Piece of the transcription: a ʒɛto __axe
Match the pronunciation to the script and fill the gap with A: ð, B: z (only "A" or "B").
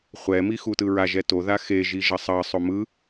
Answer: A